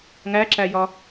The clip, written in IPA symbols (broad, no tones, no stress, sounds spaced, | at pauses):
ŋ æ ǁ æ j ɒ